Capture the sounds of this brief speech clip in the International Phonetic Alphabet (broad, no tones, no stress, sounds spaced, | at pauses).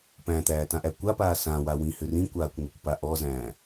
p æ̃ t̪ æː t ã ʔ æ kʷ a p aː s ã w a w ĩ h ʏ r ĩ kʷ aː kʷ ŋʷ i kʷ p a ʔ ɔ z æ̃ː